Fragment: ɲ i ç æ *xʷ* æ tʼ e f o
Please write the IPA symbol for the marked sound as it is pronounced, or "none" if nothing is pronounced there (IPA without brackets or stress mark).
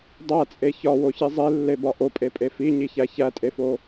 ç